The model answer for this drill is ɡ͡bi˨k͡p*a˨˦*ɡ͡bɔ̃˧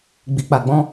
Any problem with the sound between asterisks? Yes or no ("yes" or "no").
yes